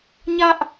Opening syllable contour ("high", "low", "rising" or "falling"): high